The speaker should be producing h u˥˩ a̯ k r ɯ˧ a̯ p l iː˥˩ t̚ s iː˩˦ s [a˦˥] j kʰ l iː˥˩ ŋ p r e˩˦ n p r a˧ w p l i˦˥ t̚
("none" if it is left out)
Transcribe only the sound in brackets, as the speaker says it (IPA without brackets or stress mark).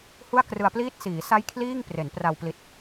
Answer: a˦˥